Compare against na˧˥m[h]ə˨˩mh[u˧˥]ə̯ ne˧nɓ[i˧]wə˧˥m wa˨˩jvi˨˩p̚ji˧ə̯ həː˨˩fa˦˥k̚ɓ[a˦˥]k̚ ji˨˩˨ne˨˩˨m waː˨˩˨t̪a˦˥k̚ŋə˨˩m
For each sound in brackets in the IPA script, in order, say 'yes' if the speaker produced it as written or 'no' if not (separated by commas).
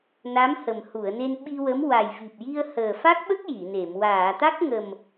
yes, no, yes, no